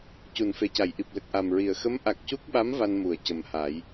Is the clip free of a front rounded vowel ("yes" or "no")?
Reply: yes